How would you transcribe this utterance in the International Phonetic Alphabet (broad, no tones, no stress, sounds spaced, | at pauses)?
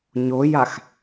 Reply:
ɲ o j a x